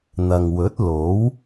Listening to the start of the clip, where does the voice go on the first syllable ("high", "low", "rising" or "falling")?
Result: low